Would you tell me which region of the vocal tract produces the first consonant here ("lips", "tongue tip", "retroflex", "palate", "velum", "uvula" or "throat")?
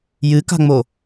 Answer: palate